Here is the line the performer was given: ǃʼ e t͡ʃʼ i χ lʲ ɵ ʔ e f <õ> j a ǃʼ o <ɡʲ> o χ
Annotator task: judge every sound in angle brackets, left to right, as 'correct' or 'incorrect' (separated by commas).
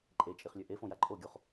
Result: correct, correct